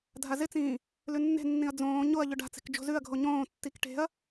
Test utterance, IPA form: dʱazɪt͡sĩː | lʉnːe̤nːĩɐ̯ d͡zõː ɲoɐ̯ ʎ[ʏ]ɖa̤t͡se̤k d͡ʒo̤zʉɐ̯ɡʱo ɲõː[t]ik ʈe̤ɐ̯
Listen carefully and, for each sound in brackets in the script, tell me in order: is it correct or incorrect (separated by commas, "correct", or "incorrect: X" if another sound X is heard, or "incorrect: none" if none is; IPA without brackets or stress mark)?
correct, incorrect: tː